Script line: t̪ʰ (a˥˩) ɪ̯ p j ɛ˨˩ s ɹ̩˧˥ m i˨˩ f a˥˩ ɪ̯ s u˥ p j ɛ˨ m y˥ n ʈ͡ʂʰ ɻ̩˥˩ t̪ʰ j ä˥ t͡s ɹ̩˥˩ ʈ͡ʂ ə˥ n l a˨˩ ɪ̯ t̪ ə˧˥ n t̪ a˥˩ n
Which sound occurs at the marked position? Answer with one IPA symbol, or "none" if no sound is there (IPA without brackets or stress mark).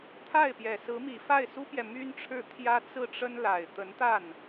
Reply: a˥˩